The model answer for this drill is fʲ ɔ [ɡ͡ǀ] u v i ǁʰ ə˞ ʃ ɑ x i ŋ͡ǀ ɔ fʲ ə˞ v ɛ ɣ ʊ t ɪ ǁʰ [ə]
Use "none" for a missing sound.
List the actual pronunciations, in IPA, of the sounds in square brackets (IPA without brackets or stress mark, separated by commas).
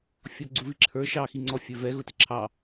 ɡ͡ǀ, ɑ